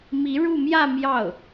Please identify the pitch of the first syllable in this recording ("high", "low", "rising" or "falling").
rising